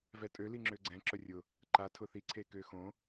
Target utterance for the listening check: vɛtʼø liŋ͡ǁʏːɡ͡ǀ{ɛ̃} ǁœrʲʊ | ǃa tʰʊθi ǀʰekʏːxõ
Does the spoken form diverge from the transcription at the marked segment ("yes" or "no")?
no